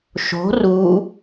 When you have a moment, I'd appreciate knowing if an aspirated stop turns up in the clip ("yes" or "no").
no